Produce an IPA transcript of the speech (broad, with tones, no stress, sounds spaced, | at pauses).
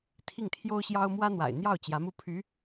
t̪ʰ i˥˩ ŋ t̪ʰ j o˥ ʊ̯ ɕ j ɑ˥ ʊ̯ m w ä˥ n̪ w a̰˨˩ ɪ̯ n̪ j ɑ˥˩ ʊ̯ t͡ɕ j ä˧˥ m u˥˩ pʰ y˧˥